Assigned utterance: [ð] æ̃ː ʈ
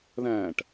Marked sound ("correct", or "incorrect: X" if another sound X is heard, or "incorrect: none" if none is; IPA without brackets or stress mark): correct